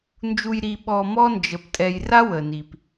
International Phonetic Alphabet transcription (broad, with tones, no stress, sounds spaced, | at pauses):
n d͡ʒ u˨ j ɾ i˨ ɓ ɔ˨ m ɔ˦ n d͡ʒ ə˨ p tʼ ɛ˨ j r a˦ w ə˨ n i˨ p